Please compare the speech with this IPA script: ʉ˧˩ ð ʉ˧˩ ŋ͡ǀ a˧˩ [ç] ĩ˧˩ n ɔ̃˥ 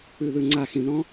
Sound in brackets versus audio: incorrect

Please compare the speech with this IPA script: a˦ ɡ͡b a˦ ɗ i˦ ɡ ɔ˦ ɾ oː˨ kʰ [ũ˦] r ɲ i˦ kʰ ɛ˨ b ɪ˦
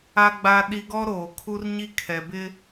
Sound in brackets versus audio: incorrect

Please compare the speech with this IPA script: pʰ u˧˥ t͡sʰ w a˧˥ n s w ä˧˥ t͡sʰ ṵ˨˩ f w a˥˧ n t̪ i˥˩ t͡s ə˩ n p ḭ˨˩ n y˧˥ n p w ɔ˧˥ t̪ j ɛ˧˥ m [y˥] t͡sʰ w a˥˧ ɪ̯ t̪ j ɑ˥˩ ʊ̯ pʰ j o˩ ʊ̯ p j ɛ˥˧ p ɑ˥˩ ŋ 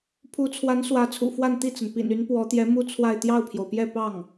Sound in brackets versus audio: incorrect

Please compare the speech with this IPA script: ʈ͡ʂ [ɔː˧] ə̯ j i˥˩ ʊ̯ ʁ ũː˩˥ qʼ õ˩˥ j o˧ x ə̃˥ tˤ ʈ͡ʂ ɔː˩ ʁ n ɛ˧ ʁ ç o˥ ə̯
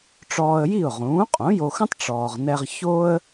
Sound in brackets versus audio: correct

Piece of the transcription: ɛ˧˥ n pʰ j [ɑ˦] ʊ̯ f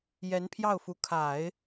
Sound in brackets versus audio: incorrect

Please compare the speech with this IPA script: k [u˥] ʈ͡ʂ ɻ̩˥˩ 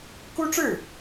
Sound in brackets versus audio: correct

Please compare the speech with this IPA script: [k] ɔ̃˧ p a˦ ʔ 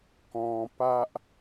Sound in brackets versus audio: correct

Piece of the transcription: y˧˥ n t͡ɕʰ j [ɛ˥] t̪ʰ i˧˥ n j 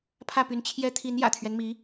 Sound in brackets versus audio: correct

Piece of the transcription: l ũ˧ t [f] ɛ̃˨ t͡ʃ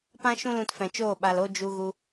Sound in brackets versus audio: correct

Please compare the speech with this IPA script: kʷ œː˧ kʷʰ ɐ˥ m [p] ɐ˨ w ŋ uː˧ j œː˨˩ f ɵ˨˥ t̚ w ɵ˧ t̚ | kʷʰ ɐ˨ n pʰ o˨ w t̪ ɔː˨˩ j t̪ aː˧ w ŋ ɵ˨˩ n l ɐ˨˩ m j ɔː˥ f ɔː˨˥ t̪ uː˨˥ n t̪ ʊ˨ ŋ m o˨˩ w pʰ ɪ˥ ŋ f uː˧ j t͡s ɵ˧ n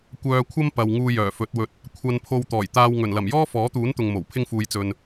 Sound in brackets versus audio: correct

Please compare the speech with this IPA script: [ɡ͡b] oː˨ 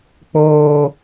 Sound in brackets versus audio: incorrect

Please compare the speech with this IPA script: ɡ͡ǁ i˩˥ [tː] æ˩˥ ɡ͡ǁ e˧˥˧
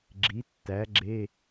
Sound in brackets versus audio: correct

